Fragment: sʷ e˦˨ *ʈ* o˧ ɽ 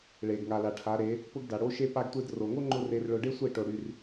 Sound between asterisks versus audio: correct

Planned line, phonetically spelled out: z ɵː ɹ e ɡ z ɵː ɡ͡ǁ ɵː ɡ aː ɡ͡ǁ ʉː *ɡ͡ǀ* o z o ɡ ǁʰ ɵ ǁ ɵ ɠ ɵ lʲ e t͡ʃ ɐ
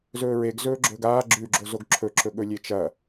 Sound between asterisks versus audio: incorrect: ɡ͡ǁ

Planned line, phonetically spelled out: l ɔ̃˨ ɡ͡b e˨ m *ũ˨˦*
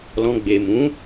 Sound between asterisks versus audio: correct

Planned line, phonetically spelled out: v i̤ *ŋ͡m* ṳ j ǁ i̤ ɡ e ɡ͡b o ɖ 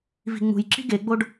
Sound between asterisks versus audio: correct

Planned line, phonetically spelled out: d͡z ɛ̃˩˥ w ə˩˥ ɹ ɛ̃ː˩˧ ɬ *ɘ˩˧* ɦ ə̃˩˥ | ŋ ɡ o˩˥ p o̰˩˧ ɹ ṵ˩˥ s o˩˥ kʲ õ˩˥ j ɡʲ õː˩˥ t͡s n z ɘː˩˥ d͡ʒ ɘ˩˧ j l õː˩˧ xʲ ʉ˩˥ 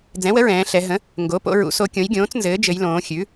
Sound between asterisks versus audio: incorrect: ɛ˩˧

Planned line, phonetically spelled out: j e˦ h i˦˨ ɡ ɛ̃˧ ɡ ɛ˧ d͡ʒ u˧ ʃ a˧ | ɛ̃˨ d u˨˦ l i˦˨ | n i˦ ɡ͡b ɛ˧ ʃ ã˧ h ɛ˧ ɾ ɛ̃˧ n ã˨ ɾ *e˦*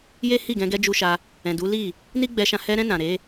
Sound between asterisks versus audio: incorrect: e˨˦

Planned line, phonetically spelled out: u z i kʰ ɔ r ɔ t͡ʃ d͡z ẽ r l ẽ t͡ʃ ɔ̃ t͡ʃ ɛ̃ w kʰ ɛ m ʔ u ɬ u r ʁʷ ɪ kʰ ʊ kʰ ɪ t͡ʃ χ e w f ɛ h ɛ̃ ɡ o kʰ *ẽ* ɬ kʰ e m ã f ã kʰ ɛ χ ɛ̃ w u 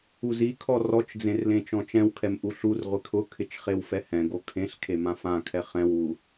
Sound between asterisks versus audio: correct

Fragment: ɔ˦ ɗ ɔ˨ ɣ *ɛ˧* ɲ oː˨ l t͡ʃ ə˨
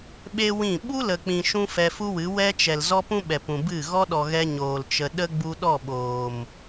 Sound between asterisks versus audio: correct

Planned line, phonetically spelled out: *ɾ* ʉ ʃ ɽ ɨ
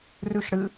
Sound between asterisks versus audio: incorrect: r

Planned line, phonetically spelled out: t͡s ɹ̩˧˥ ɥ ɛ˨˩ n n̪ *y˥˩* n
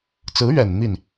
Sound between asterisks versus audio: incorrect: i˥˩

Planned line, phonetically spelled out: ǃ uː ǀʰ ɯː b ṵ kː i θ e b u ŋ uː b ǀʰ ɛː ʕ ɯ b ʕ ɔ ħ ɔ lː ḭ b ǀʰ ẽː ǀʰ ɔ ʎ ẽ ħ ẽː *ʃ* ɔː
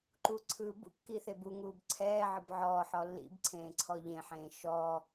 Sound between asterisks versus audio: correct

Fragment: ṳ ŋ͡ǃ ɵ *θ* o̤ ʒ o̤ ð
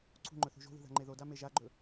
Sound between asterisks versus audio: correct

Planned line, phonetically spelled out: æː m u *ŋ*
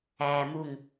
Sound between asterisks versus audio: correct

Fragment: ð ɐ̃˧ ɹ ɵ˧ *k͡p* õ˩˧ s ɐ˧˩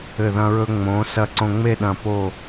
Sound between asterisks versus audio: incorrect: ŋ͡m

